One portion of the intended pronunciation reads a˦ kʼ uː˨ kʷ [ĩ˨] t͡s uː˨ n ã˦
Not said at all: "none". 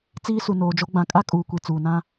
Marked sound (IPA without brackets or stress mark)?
i˨